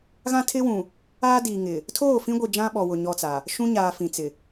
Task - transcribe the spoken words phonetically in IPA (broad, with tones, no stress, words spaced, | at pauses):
ɣã˦tʰɪ˦wũ˨ | a˦di˨ŋɪ˨ | tʰoː˦˨fĩ˦ɡʷi˨ d͡ʒã˦ɓɔ˨wʊ˨ ɲɔ˦t͡sa˨ | ʃũ˦ɲaː˨ fĩ˨t͡sɪ˨